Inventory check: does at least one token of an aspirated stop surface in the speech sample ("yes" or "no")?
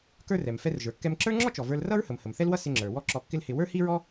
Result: no